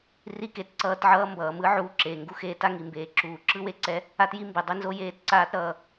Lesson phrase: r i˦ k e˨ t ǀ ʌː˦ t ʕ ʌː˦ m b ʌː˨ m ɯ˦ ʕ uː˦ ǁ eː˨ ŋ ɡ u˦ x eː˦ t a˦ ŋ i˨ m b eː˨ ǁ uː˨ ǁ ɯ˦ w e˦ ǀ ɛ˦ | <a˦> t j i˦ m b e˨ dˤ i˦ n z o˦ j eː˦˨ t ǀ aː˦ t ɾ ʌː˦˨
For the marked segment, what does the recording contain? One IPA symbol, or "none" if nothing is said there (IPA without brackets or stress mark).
a˦